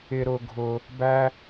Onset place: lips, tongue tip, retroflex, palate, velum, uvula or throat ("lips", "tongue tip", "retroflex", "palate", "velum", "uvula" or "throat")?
tongue tip